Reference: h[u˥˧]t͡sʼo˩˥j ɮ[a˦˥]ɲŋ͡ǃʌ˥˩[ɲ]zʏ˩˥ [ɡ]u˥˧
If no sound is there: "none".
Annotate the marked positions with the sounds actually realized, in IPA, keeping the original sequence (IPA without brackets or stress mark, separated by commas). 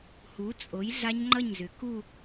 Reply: u˩˥, a˦˥, ɲ, k